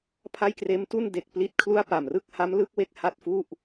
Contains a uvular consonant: no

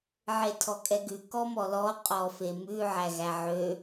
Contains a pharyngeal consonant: yes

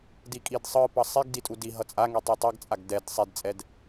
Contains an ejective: yes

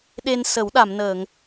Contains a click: no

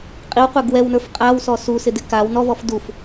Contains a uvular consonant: yes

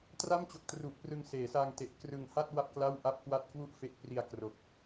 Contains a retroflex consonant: no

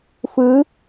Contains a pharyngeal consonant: no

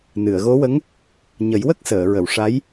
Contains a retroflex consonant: yes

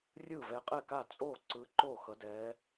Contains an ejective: yes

